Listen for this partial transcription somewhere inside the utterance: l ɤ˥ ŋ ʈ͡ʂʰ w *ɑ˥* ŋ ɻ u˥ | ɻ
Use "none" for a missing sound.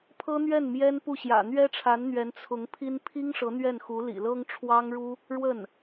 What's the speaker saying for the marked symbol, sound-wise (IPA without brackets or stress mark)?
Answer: ɑ˥